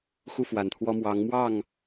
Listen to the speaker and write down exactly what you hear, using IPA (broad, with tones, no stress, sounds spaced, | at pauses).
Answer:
x u˥˨ f w a˨˩ n t̪ʰ w ɔ˦ m w ɑ˨˦ ŋ m w ɑ˥˨ ŋ